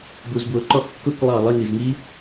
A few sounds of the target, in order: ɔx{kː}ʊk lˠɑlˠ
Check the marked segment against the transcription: correct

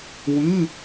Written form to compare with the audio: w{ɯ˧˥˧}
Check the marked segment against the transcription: correct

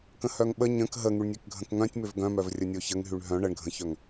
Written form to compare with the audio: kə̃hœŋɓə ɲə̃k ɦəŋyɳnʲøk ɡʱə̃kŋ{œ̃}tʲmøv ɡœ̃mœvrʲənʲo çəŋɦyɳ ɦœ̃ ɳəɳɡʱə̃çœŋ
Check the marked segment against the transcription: correct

